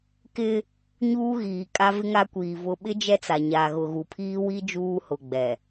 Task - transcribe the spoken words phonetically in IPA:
kɪ˦ | ɲuː˦ɣiː˨ kʼa˦vɪ˦ŋa˦kʷiː˨ vʊ˨ ɓɪ˦ d͡ʒɛ˦t͡sa˨ɲa˨ ɣʊ˨ɣu˨ pʰiː˦wi˦ d͡ʒuː˦hʊ˨ɡ͡bɛ˨

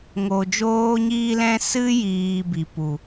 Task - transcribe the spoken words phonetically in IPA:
ŋoː˧d͡ʒoː˦ɲiː˦lɛ̃˦ sɨ˦jiː˨ bi˨pu˨

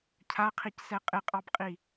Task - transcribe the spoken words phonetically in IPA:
cʰaqʰicsɛ qʼɪqʼɑbqʼi

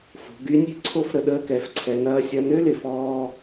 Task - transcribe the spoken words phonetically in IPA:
fo̤˩˧ɡy˧˥nʲe̤˥ ǀʰo˥fɾə˧ ɗəː˧kɛ˩˧f ǀʰɛ˧nɐː˥ sʲɐ˧nø˥lɪ˩fɔː˧

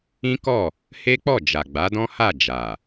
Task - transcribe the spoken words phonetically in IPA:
ĩ˦kɔ˦˨ | he˦k͡pɔ˦˨d͡ʒa˨ ɡ͡ba˨˦dɔ̃˦ha˦˨ d͡ʒa˨

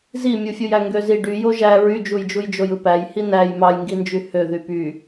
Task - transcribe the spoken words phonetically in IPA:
zimʲufʲuj æŋɡøzi ɖyjo ʒæ ɹyd͡ʒujd͡ʒuj d͡ʒojɯpæjhi næj mɑjŋɡind͡ʒy hø ðypy

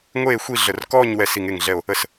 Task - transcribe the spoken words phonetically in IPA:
ŋʷeː˥˨xʷi˥˨ɮə˧˩r kɔː˥˨ɲ wɛ˧˩si˧˩ŋe˧˩ŋɮɛ˧˩o̯ | ə˧˩s

